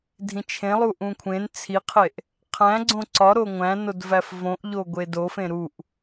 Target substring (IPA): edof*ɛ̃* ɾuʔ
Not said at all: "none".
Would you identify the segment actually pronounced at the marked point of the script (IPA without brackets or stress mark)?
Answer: ẽ